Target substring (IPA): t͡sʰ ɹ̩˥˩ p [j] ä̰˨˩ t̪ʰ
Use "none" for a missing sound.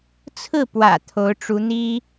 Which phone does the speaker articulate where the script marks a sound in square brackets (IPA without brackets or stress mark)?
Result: w